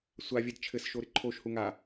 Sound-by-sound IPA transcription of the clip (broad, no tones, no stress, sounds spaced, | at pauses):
sʷ a vʲ ɛ d t͡ʃʰ ɘ s ʃ o ɾ ɪ ǃʰ o ʃ h u ŋ a